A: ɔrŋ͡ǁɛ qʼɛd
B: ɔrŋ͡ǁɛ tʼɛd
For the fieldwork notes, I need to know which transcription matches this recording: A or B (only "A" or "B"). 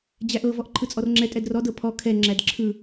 B